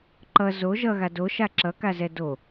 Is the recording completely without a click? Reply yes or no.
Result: no